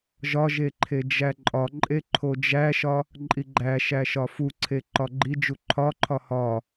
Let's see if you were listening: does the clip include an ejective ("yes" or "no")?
yes